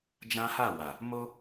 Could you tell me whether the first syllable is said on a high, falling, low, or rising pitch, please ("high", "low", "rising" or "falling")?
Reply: high